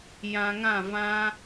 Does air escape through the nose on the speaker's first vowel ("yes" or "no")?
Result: yes